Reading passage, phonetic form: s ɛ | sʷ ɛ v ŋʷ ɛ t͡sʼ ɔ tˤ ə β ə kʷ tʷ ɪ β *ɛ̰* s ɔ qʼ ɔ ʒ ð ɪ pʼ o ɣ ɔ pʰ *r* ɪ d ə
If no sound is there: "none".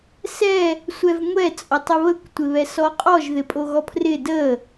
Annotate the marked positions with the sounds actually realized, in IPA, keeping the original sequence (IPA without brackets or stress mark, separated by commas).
ɛ, r